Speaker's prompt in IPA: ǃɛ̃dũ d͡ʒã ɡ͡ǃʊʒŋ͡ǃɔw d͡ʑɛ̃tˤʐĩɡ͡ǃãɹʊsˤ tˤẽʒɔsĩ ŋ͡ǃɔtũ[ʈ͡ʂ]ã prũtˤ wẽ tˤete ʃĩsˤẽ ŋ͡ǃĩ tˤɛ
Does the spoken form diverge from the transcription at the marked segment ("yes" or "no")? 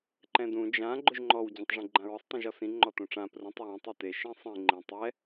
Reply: no